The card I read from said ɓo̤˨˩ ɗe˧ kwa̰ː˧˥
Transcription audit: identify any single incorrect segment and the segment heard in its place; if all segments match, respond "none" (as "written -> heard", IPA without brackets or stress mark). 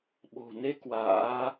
ɗ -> n